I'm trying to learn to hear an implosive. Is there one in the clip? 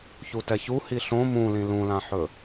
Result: no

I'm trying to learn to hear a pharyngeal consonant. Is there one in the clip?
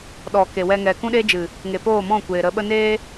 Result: no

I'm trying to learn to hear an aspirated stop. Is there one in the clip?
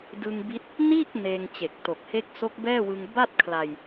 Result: yes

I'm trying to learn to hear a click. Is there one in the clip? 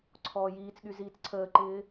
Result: yes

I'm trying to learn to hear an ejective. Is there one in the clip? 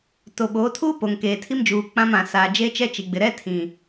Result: no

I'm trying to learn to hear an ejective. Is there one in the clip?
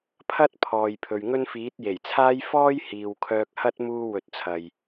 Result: no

